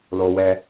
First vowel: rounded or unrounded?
rounded